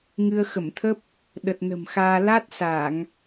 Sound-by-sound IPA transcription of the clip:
ŋ ɨ˧ ə̯ x ə˧˩ m t̪ʰ ə˦˥ p̚ | ɗ ə˨˩ t̚ n ə̤˨˩ m x aː˧ l a˦˥ t̚ s a˧˩˨ ŋ

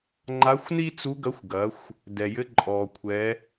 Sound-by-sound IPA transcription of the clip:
ŋ͡ǃ a˧˥ xʷ n i˥ t͡s u˧˥ ɡ ɐ˧˥ xʷ ɡ ɐ˩˧ xʷ | d ɛ˩ j ɘ˧˥ ǃʼ ɔ˩ kʷʰ ɛ˩˧

